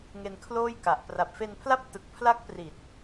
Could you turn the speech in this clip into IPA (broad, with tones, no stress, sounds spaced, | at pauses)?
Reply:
ŋ e˧ n kʰ l oː˥˩ j k a˨˩ ʔ p r a˨˩ p̚ f e˧ n pʰ l a˥˩ p̚ t ɯ˨˩ k̚ pʰ l a˦˥ k̚ p r i˨˩ t̚